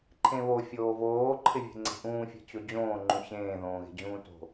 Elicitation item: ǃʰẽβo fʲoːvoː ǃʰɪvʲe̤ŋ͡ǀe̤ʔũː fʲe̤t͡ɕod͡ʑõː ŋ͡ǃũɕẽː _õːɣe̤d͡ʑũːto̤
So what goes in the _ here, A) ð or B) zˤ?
A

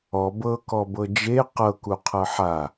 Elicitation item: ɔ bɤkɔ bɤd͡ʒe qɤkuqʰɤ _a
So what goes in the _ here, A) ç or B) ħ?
B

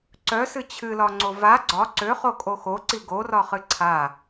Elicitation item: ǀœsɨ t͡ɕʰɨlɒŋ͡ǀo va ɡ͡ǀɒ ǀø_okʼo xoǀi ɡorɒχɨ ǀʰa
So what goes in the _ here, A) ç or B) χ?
B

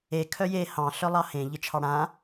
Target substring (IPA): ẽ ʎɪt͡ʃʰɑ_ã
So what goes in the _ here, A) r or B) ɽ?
B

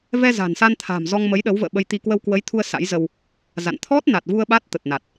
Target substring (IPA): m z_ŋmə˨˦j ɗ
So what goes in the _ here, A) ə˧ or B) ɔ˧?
B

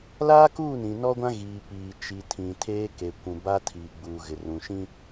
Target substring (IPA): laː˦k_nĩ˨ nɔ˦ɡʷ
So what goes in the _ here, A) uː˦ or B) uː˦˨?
B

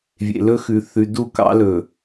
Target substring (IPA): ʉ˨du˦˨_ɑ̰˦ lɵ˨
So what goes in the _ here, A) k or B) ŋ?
A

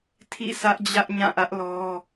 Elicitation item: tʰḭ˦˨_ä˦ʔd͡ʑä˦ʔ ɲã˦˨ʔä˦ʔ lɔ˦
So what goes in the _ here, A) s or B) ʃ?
A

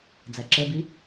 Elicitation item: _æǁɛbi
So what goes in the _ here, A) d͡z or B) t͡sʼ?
A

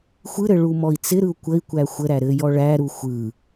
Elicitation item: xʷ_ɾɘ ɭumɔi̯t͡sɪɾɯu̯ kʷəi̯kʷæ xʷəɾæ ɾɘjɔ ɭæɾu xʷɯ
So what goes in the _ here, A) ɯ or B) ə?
A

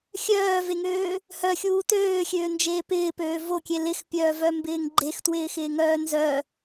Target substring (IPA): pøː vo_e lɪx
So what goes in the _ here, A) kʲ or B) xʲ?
A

